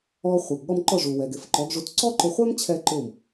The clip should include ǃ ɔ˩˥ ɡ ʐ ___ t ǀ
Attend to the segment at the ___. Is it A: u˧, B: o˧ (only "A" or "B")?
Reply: A